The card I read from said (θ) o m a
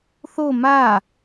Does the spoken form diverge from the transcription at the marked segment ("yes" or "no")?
no